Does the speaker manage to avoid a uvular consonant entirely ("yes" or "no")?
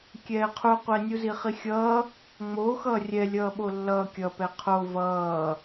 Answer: no